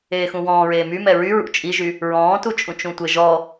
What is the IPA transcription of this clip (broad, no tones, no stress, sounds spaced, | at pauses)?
eː x ũ w ɔ̃ː ɹ eː m y m ɛ ɹ y ɹ ṵ t͡ʃʼ i ʒ y | ɹ ɔ̃ː t u t͡ʃʼ ũ t͡ʃ ũ tʷ ɘ ʒ ɔ